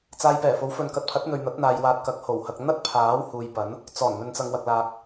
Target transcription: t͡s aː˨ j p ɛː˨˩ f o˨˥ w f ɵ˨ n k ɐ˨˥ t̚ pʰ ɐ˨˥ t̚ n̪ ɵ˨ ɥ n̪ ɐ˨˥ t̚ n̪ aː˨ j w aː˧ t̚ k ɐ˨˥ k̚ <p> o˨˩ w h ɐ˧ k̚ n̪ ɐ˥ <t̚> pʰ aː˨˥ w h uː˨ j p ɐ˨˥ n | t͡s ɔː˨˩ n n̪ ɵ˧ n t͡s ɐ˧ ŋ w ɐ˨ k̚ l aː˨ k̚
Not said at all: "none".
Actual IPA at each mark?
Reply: h, t̚

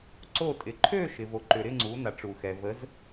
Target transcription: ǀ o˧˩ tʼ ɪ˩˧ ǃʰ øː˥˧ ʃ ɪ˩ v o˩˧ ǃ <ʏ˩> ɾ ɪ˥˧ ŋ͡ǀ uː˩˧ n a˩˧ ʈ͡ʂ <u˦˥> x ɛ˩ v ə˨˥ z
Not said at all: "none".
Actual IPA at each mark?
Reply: ʏ˩, u˩

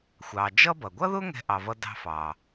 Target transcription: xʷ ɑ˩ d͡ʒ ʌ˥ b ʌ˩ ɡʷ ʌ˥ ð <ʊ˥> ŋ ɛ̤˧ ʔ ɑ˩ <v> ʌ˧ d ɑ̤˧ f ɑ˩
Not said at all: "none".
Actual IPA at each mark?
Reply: ʊ˥, v

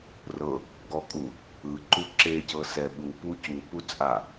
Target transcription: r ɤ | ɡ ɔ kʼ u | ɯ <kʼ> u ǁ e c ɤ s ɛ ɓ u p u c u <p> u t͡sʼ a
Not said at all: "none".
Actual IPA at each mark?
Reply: ǃ, p

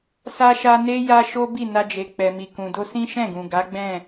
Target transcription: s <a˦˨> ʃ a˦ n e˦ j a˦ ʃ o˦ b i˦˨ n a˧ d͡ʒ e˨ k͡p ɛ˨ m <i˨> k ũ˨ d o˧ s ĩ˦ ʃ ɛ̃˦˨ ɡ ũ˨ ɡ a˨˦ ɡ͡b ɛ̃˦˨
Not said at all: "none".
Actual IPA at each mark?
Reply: a˦, i˨

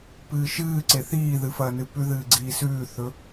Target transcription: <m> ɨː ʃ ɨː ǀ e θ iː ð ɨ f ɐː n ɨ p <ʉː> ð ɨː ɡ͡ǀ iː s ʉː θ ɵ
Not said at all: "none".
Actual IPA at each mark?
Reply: p, ʉ

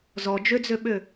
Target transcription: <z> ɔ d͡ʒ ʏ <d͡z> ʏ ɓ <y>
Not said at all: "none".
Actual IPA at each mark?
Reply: z, d͡z, ʏ

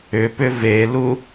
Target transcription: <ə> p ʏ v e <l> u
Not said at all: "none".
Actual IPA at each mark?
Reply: ʏ, l

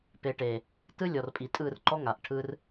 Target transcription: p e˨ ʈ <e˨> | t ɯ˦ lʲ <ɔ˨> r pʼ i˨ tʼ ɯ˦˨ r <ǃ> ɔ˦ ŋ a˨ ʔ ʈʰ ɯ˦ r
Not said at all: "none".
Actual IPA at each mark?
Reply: e˨, ɔ˨, ǃ

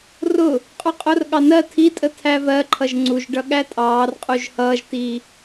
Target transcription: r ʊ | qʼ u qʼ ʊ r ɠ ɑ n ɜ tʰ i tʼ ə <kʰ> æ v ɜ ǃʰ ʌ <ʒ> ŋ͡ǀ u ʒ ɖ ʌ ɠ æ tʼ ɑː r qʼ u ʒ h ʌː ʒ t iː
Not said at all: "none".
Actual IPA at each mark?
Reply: tʰ, ʒ

